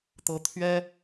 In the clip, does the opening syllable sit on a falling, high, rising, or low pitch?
rising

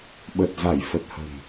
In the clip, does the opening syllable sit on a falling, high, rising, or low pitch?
low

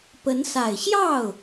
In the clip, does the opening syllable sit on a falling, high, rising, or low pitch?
rising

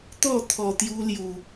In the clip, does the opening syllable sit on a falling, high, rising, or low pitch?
falling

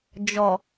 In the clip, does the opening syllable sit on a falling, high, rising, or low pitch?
low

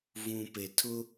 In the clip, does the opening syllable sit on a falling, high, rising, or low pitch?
low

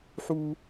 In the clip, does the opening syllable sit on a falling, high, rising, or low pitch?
high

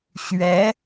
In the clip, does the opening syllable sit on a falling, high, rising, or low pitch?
rising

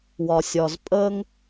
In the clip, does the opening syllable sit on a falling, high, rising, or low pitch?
low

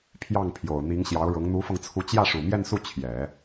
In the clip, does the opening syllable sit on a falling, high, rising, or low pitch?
falling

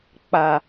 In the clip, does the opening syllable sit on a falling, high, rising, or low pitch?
low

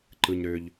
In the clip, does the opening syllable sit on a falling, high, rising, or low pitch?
low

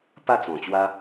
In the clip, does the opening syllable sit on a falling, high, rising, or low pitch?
falling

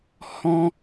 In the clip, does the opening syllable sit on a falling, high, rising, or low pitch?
high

